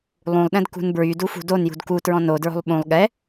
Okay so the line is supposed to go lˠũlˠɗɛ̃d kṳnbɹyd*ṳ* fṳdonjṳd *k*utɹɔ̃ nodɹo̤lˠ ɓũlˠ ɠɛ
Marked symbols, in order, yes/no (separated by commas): no, yes